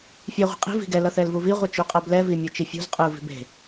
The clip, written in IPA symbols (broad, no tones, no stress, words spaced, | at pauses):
fʲe ʁʷi̤qʼi̤ vi̤ɡɛ lʌθɛlvuvi ʁʷɯt͡ʃuqʼablɛ vimʲot͡ʃifʲṳz qʼɯ vi̤be̤